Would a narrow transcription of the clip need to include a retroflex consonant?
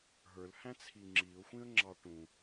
yes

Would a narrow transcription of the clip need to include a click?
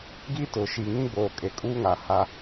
no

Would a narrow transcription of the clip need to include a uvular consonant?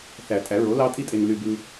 no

